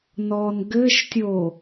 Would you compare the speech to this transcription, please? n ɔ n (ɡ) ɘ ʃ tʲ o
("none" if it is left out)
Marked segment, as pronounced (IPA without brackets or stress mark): ɡ